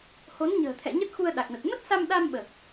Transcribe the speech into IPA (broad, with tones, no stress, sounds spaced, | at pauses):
h o˨˦ n ɲ ə̤ː˨˩ t̪ʰ ɛ̰˧˨ ɲ ə˦˥ t̚ x u˧ ə̯ ɗ a˨˩ k̚ n ə˨˩ t̚ m ə˦˥ t̚ s a˧ m ɗ a˧ m ɓ əː˨˩ k̚